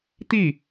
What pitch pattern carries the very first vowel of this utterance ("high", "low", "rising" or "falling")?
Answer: falling